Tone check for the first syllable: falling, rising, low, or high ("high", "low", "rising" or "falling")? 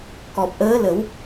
low